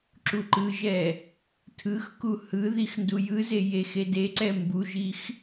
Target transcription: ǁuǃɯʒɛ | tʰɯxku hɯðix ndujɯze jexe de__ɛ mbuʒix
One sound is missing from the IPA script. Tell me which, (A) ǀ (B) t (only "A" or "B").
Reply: A